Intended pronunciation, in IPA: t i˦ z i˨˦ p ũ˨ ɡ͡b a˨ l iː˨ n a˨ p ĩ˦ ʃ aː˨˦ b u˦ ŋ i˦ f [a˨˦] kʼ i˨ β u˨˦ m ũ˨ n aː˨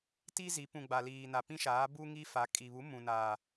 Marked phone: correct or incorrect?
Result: correct